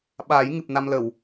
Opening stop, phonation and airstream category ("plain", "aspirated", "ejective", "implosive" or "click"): implosive